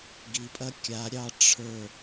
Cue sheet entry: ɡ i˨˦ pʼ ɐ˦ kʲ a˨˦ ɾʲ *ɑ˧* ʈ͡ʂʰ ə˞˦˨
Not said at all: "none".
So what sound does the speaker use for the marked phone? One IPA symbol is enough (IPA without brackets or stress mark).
ɑ˧